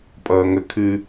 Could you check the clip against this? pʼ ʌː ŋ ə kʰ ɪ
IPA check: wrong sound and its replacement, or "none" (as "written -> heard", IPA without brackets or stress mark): ɪ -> ɨ